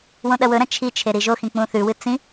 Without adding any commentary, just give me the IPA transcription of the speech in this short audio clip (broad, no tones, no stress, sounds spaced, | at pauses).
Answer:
w õ ɗ ɐ w ɵ ɾ ɐ̃ t͡ʃʰ i t͡ʃʰ e ɾ i ʒ o x ĩ k͡p ũ θ ʉ w ɨ t͡s ĩ